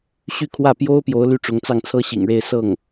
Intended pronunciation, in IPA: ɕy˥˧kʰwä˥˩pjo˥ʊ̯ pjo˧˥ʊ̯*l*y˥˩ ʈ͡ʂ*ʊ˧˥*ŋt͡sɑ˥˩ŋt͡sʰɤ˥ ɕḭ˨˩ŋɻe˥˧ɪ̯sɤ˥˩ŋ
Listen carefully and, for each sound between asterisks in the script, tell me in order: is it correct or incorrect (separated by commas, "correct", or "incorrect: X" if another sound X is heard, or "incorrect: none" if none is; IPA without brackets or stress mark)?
correct, correct